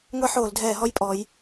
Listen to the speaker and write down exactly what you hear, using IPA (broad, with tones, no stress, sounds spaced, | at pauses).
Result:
ŋʷ ɛ˦ ħ oː˧˩˧ l dʱ ɛː˧˩˧ ɦ ɔ˦ j pʼ ɔ˩˧ j